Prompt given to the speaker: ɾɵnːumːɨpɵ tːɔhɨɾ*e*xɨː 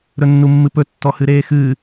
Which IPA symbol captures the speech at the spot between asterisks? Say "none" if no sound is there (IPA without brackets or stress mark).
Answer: eː